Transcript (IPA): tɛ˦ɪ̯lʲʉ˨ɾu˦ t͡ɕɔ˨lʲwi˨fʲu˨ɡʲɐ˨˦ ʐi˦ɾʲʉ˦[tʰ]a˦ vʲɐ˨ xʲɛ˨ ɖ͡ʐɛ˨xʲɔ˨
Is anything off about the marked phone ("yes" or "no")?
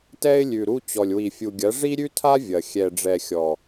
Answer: no